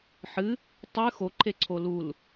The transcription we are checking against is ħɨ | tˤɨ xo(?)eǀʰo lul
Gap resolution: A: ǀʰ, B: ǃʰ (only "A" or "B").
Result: B